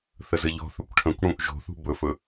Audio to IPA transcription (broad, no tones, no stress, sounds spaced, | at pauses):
θ ə z ɘ ʎ ɔ̤ θ ɵ kʷ ʈʰ ə̃ kʷ ɽ ũ ʔ ʒ o̤ θ ṳ b ɵ f ɵ